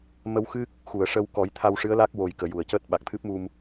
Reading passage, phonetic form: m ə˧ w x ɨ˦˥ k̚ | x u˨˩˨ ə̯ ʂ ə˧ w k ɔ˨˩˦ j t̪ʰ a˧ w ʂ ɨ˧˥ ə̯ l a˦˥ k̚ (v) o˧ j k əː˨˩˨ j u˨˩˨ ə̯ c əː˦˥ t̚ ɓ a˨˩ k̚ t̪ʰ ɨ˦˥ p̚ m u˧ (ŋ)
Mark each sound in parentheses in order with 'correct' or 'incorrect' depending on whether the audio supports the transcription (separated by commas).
incorrect, incorrect